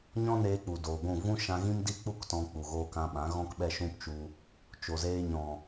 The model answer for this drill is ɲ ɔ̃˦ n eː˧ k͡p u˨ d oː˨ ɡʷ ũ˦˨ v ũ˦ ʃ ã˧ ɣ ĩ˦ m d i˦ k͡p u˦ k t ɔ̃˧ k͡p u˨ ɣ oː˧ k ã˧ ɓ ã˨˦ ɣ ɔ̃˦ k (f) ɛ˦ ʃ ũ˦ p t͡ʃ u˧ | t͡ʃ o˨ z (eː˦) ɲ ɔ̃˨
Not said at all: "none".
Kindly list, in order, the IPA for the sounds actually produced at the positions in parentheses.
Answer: ɓ, eː˧

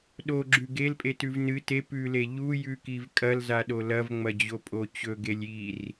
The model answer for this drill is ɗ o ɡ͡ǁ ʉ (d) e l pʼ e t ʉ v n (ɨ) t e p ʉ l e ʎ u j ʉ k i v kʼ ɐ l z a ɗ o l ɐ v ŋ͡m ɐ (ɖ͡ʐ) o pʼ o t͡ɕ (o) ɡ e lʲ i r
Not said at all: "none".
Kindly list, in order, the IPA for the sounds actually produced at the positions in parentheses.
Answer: ɡ, ɨ, d͡ʑ, ɵ

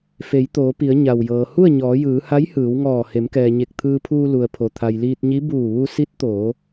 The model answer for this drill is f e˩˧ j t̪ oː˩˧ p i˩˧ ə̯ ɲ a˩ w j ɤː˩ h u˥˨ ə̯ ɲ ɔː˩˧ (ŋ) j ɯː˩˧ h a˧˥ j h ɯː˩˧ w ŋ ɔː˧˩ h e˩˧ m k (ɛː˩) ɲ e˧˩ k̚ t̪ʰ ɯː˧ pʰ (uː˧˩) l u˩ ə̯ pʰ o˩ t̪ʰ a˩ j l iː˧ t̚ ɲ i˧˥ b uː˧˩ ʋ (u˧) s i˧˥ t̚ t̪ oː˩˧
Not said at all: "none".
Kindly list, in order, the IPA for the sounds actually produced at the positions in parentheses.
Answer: none, ɛː˩, uː˧, u˧

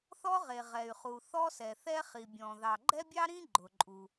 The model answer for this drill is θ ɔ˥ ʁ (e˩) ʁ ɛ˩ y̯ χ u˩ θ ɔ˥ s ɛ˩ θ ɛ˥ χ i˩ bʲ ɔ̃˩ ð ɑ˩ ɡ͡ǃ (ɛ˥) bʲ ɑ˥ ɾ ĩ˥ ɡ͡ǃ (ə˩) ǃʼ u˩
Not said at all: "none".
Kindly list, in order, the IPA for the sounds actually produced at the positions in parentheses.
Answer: e˩, ɛ˥, ʊ˩

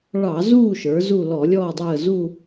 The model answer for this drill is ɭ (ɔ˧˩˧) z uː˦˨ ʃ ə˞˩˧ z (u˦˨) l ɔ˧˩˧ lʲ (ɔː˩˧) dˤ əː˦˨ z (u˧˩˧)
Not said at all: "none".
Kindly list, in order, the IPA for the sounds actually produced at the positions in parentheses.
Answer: ɑ˧˩˧, u˦˨, ɔː˦˨, u˦˨

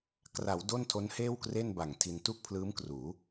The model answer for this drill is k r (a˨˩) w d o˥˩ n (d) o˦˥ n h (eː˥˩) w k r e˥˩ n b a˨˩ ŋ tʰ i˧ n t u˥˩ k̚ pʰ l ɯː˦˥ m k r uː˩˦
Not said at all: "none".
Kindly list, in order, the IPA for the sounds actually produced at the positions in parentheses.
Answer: a˩˦, tʰ, eː˥˩

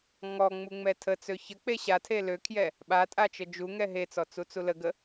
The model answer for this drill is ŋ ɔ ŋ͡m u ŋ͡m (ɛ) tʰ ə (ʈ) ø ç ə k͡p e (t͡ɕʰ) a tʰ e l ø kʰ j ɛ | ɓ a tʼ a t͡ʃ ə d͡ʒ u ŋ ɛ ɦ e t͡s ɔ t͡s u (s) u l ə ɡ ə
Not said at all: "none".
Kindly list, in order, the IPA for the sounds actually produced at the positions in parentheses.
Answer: ɛ, t͡s, ɕ, t͡s

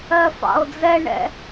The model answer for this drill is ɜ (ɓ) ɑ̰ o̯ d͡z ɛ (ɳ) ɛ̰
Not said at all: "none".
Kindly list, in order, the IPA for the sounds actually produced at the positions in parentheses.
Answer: f, ɳ

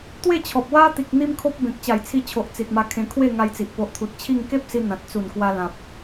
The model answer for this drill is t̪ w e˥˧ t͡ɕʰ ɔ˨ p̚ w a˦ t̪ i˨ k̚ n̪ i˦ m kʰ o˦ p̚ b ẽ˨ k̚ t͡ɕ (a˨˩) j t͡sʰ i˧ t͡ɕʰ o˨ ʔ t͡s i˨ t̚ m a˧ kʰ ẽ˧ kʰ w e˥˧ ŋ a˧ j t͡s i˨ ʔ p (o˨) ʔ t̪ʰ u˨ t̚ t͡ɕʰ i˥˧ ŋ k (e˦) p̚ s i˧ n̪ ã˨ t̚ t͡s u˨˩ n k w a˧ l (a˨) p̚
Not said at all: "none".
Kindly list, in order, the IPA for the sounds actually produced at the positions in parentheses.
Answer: a˨˩, o˨, e˦, ã˨

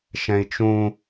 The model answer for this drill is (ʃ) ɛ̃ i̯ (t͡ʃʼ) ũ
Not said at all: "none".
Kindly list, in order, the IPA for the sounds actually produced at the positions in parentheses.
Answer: ʃ, t͡ʃ

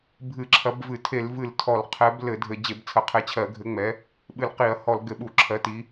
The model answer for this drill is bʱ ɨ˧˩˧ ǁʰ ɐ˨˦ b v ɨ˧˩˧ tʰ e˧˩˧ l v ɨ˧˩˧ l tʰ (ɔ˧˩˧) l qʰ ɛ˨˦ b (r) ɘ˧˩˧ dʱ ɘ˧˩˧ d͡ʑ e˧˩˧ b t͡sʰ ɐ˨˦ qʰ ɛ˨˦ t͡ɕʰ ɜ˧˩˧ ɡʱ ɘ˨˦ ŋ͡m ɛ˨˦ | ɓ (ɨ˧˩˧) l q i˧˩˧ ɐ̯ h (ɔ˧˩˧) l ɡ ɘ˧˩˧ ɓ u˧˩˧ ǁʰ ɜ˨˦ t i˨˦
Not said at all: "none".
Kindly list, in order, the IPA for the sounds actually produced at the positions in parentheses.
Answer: ɔ˧˩˧, l, ɨ˧˩˧, ɔ˧˩˧

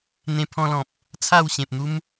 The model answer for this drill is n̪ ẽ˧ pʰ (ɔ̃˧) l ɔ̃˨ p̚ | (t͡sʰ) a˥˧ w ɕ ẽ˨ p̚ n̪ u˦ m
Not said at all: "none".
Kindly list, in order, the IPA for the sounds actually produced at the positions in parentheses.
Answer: ɔ̃˧, t͡sʰ

